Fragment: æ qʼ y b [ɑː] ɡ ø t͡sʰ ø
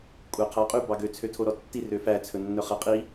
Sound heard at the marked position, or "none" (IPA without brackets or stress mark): ɑ